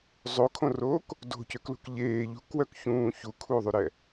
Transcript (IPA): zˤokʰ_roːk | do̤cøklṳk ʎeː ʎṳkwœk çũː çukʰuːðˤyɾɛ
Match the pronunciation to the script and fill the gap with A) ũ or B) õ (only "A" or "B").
B